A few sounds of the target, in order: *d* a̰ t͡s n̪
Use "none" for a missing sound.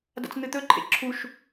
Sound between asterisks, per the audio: d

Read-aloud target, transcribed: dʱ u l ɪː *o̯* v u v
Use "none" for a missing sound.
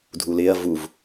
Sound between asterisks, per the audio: ɐ̯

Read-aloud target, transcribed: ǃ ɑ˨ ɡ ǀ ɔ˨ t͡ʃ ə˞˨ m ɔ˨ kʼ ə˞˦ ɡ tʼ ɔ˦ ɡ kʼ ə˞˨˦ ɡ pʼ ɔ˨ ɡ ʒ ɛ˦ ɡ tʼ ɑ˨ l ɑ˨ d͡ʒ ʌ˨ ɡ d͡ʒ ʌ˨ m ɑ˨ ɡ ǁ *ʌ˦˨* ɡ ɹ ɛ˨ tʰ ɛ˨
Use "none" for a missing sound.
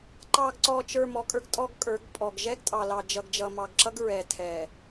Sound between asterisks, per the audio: ʌ˦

